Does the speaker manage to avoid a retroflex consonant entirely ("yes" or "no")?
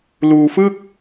yes